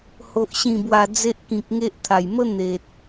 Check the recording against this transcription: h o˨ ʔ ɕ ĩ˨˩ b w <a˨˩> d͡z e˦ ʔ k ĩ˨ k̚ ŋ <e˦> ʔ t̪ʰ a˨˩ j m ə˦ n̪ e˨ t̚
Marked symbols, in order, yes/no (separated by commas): yes, yes